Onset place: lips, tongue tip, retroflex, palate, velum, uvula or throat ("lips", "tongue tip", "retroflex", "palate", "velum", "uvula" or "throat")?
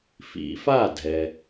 lips